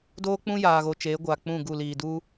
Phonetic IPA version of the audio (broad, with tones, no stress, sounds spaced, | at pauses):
d oː˦ k͡p ũ˦ j aː˨ ɣ o˨ t͡ʃ eː˨˦ ɡʷ aː˨ k͡p ũ˦˨ ɡ u˦˨ l iː˨ d u˦